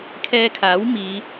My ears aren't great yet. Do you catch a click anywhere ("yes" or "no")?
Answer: no